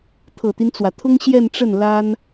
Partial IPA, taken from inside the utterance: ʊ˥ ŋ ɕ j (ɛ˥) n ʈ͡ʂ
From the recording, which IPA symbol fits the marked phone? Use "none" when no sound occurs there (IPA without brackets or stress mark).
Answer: ɛ˥˧